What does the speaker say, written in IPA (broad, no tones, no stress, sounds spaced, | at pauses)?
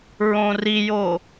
ɹ õ r i j o